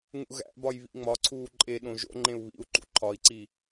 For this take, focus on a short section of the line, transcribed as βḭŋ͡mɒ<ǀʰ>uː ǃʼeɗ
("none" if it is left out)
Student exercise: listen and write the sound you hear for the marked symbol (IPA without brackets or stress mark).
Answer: ǀʰ